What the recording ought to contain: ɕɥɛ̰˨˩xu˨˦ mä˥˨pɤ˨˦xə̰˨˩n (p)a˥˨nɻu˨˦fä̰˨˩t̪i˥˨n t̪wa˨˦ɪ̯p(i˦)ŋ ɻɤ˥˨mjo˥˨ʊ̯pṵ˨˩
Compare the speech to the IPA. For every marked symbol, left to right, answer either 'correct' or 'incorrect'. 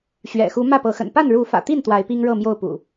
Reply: correct, correct

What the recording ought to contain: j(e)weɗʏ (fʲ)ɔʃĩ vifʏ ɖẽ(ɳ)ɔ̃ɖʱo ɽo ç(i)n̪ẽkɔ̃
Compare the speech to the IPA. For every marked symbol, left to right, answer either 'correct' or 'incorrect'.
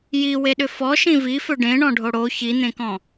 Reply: incorrect: i, incorrect: f, correct, correct

